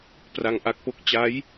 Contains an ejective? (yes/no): no